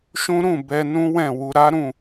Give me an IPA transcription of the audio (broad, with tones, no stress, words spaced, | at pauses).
ʃũ˦ ɾũ˦˨ bɛ˧ nũ˦wɛ̃˦˨wu˧ ɾa˦ɾũ˦˨